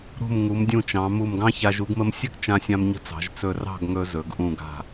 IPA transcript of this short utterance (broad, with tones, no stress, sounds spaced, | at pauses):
ɾ ṳ˧˩ m ŋ u˩˧ m dʲ ũ˧˩ t͡ʃ ɑ̃˩˧ m u˧˩ m ɡ ɑ̃˥ ç a˧ ʒ u˧ ɡ m ə˧ m sʲ ɘ˥ ɡ t͡ʃ ã˧ sʲ ã˧ m ɲ ə̤˧ t͡s ɑ̤˩˧ ʒ t͡s ɵ˧˩ r ɑ̤˥˧ ɡ ŋ ɵ˧ z ɵ˩˧ ɡ ʔ ũ˧˩ ɡ a̤˧˩